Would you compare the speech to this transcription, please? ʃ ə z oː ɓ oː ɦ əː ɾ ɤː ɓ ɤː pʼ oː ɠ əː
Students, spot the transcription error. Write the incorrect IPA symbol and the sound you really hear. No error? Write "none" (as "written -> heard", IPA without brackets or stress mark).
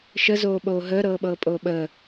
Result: ɠ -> ɓ